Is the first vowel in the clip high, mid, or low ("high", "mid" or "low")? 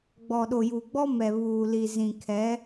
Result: mid